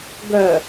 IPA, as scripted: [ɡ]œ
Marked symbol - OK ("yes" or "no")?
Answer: yes